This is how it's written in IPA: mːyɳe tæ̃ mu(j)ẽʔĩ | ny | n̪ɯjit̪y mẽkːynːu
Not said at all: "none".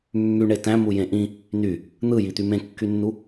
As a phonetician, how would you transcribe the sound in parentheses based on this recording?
j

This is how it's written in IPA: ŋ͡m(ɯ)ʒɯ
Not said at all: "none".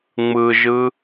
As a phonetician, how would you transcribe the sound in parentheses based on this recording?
ɯ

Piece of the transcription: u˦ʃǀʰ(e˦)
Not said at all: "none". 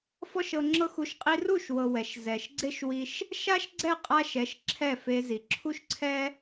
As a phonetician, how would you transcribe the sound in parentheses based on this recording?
ɛ˦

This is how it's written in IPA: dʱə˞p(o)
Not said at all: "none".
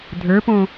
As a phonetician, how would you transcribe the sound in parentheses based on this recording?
õ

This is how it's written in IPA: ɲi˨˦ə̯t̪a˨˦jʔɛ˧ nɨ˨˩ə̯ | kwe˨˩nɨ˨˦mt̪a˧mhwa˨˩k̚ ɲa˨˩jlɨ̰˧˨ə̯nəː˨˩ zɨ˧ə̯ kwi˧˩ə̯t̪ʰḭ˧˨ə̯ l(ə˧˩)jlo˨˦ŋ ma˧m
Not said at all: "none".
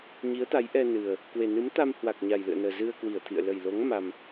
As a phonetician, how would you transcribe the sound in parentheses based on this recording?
ə˨˩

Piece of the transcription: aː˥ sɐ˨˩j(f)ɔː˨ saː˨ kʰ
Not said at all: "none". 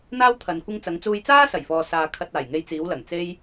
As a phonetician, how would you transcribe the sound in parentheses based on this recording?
f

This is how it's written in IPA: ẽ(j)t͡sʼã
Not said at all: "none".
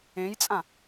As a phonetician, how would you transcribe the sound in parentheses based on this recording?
j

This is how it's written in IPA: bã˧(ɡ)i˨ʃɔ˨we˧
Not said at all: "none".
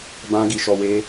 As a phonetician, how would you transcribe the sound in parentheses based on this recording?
ɡ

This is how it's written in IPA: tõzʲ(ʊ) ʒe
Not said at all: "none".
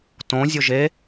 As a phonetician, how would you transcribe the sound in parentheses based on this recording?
ʊ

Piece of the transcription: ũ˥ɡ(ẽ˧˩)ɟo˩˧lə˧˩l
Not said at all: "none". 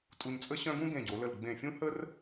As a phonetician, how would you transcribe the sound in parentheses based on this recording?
ẽ˧˩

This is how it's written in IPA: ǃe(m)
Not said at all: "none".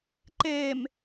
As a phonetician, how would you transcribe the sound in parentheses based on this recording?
m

